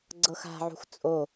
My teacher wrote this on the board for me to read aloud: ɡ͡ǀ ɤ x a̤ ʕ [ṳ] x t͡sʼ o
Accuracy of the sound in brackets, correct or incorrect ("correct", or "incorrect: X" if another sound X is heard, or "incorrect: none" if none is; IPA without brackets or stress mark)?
correct